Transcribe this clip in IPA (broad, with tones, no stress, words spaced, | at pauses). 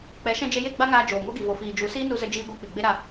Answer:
k͡pɛ˨˦ʃɛ̃˧d͡ʒe˧je˦˨ ɡ͡ba˦ŋaː˧ d͡ʒoː˨ŋo˦ɡi˨ vo˨fiː˨d͡ʒu˨˦ siː˦nu˧ zə˦ d͡ʒiː˧ɡʷa˧ k͡pi˨ ɡ͡be˦ɾa˧